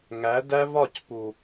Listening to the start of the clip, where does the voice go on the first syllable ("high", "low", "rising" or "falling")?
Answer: rising